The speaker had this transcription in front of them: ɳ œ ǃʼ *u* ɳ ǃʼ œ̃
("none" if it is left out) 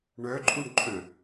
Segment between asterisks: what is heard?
u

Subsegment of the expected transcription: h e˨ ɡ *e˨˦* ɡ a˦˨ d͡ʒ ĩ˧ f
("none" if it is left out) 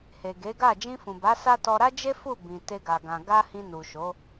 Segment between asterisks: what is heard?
e˨˦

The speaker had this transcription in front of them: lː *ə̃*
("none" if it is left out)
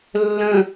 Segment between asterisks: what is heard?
ə̃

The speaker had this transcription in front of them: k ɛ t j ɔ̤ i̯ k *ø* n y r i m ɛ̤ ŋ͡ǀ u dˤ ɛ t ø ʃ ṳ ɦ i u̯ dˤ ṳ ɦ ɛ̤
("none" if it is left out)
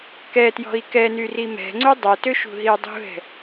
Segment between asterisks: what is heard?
ɛ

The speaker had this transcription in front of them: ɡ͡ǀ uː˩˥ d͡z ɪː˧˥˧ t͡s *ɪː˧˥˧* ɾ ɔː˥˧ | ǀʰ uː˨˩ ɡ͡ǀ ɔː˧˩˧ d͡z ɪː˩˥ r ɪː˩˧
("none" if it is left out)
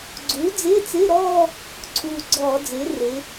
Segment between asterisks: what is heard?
ɪː˧˥˧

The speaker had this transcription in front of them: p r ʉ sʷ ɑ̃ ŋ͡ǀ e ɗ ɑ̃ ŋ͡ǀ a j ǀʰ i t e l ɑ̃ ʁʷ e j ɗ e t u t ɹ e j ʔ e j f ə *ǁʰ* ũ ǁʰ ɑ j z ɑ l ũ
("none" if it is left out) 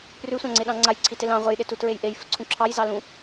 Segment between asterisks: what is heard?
ǀʰ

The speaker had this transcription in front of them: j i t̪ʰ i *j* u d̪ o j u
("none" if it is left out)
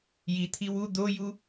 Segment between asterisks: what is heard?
w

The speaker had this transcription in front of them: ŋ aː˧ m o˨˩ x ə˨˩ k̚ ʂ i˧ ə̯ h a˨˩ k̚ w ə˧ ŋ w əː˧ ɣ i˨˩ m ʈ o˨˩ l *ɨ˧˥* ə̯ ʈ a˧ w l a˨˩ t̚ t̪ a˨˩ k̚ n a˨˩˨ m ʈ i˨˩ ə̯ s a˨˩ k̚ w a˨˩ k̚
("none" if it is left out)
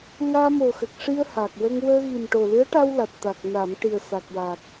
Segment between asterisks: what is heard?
ɨ˧˥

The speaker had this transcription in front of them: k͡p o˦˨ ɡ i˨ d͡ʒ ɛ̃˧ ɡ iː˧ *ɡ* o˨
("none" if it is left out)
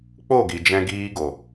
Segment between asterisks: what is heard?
ɡ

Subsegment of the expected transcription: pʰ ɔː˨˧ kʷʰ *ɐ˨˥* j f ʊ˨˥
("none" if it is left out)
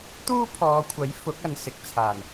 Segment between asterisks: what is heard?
ɐ˨˥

